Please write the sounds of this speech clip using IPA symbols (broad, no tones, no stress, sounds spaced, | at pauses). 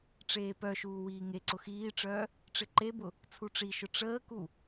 ʈ͡ʂ eː p œ ʃ uː w iː ŋ e ǀ ʊ x iː ʈ͡ʂ œː | ʈ͡ʂ ɪ ǃ e b ʊ | t͡sʰ u ʈ͡ʂ i ʃ ʊ ʈ͡ʂ əː k u